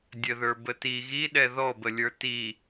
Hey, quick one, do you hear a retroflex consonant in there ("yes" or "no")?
no